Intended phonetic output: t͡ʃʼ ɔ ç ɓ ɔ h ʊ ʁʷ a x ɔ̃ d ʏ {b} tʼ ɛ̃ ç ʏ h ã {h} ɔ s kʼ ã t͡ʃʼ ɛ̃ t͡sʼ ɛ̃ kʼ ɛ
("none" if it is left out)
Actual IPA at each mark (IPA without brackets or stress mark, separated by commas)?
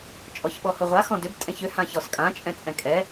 b, ç